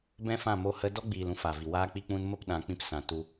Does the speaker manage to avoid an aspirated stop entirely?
yes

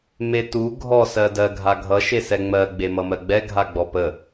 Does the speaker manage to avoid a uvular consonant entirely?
yes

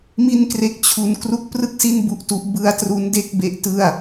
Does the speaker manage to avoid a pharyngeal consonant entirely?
yes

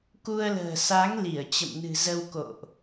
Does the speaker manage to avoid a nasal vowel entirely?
yes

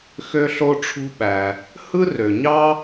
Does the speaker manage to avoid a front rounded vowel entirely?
no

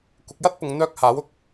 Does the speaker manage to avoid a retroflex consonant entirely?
yes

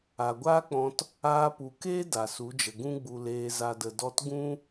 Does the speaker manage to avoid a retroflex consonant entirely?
yes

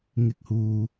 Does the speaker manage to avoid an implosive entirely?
yes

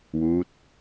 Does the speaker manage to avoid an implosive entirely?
yes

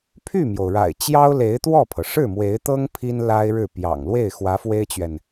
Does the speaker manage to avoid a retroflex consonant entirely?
no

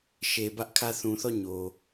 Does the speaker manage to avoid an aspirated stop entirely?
no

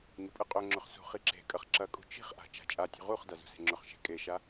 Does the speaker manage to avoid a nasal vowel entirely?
yes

